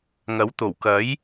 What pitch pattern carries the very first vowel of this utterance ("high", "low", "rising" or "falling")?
rising